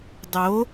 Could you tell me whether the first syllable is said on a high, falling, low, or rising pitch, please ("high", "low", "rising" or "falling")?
rising